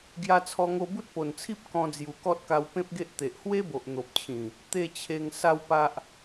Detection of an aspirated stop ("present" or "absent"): present